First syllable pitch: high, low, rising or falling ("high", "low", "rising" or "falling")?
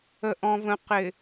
low